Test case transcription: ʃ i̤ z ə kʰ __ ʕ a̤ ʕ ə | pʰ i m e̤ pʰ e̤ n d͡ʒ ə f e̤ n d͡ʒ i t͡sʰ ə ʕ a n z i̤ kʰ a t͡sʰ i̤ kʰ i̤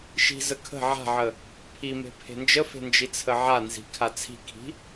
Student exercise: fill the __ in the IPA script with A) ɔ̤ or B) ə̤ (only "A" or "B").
B